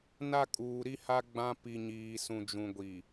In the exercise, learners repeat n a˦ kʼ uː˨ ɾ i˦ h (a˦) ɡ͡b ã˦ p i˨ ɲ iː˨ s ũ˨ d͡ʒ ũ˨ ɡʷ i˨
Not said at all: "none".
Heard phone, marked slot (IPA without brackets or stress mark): a˦